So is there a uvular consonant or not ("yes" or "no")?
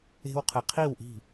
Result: yes